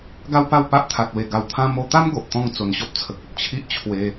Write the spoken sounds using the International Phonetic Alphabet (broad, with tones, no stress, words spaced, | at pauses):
ɡa˦wpa˥˧w pa˦ʔt̪ʰa˨t̚we˨˩ ɡa˧wt̪ʰã˦ mo˧t̪a˦m ɡo˨ʔt̪ɔ̃˦ŋ t͡so˨˩nɕɔ˦p̚t͡sʰə˨k̚o˨t̚ t͡ɕʰi˦ʔ t͡ɕʰwe˧